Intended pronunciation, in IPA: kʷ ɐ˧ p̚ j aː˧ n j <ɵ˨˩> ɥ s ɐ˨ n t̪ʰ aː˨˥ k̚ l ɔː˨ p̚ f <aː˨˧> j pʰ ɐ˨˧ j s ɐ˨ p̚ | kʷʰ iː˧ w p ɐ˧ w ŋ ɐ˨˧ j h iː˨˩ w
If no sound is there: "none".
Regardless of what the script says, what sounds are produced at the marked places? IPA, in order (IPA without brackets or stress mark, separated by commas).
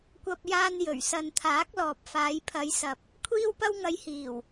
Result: ɵ˨˩, aː˨˧